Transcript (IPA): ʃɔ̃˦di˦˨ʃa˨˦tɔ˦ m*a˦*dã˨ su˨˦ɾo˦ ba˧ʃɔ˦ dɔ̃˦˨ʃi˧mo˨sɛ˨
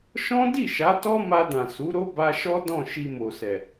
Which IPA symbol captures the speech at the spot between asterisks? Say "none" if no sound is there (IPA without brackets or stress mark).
a˧